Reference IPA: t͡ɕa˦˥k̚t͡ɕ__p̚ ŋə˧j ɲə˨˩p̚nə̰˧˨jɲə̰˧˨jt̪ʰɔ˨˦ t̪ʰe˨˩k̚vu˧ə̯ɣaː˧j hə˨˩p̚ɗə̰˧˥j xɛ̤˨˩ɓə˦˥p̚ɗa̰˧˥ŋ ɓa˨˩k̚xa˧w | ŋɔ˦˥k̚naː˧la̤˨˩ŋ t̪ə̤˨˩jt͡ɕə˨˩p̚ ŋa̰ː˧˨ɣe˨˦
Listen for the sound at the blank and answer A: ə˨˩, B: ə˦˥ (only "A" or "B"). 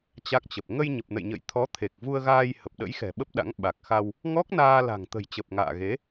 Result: A